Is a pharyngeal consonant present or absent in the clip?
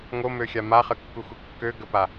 absent